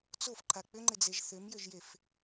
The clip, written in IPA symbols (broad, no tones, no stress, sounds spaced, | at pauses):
t͡s o f ǃʰ a k͡p ʏ ŋ͡ǃ ɪ d͡z e ʒ θ ʏ m j ʏ ʒ j e f